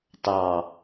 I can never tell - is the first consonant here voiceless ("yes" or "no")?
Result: yes